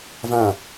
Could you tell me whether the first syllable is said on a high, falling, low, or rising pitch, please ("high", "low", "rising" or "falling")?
falling